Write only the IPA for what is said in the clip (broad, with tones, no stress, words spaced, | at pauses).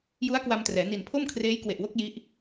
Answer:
ju˦˥a̯kwa˧mtrɛː˩˦ ni˨˩npʰo˥˩m kʰreː˦˥jkwe˨˩ʔwo˦˥k̚ ji˦˥ʔ